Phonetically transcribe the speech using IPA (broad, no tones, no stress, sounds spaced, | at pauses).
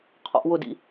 qʰ ɔ̰ ʔ w ʊ d ḭ